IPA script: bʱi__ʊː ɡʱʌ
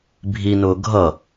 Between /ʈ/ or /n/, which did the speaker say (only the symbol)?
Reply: n